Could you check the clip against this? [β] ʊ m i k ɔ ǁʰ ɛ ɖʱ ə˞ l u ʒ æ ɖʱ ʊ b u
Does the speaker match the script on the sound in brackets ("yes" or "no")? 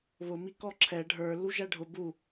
yes